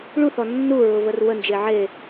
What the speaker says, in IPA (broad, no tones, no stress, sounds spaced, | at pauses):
ɭ u θ ɔ nː u ɹ ʊ v ə r w ə n d͡ʒ e ʕ e